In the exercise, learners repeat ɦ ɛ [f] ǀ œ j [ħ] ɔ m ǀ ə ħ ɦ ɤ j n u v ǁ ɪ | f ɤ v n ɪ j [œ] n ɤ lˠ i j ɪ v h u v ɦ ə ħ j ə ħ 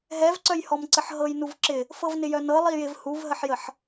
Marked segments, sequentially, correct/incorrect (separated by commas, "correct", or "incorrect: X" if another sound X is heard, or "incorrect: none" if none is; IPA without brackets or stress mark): incorrect: v, incorrect: h, correct